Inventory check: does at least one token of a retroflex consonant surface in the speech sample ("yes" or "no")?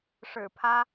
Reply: yes